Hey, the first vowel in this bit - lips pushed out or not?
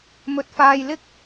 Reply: yes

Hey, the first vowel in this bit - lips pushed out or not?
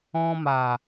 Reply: yes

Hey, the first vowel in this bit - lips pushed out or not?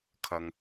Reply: no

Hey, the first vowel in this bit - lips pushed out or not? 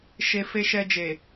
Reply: no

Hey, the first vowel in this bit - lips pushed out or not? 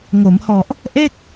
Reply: yes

